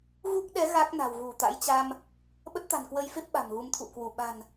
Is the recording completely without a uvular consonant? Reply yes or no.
yes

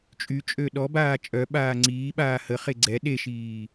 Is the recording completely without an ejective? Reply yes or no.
no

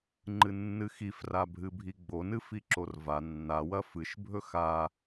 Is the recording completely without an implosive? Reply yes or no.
yes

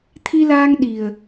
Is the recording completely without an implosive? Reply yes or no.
no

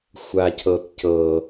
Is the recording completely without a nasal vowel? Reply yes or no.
yes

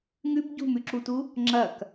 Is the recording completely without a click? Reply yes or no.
no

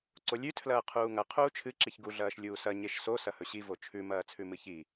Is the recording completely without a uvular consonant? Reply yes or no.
no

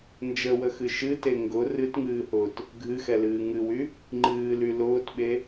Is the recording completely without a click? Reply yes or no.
no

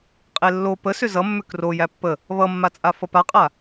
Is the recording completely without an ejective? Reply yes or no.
no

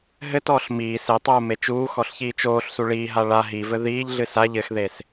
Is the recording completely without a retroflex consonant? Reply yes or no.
no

